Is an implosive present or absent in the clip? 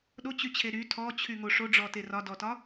present